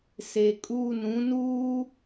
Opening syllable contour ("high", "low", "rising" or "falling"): low